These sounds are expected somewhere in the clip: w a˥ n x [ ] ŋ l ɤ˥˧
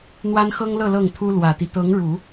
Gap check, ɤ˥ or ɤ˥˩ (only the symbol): ɤ˥